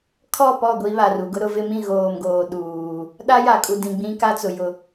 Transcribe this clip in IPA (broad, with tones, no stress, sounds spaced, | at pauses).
kʰ ɔ˦˨ p ɔ˦˨ ɡʷ i˦ β a˨ r u˨ ɡ ʊ˦ ɾ ʊ˦ v ɪ˦ m ĩ˦˨ ɣ oː˨ m ɡ oː˨ ɗ uː˨ | ɗ a˦ j a˨ kʼ u˨ d ĩ˨ ɡ͡b ĩ˦ k a˦ t͡s ʊ˨ j ʊ˦